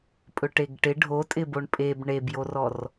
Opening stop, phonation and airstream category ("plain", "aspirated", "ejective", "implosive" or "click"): ejective